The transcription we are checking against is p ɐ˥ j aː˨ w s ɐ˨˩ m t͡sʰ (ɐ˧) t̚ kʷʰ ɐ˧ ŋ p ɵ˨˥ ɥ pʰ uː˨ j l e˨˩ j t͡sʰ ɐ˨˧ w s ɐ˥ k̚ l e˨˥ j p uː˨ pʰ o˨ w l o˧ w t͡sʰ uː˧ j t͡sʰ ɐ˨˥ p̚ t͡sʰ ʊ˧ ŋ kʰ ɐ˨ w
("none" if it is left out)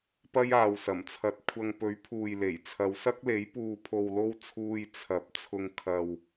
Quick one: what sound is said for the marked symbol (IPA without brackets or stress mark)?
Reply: ɐ˧